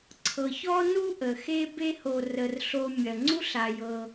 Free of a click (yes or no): no